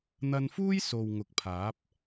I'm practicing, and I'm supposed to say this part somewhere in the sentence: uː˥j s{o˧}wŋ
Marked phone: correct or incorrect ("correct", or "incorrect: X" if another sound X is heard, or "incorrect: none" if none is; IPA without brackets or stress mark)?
incorrect: o˨